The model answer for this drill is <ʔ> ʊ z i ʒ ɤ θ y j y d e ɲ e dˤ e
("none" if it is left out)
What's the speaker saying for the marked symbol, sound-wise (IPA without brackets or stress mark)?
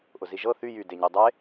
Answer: ʔ